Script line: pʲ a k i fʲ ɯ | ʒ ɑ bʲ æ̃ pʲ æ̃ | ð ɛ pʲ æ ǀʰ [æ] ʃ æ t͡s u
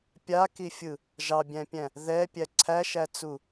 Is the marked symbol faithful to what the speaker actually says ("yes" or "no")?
yes